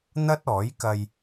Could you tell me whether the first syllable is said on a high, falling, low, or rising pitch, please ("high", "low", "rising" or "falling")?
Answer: high